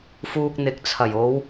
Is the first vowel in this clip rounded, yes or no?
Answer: yes